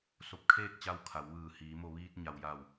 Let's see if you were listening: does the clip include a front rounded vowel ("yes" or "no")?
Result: no